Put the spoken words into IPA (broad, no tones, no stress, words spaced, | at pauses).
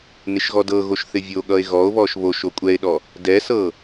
nɪʃɣɔdɤɣoʃ θɪvʲoɠʌe̯ ɣɔo̯βɔʃ βoʃ okʷʼɛe̯ɗɔ | dɛsɤ